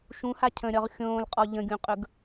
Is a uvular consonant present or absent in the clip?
present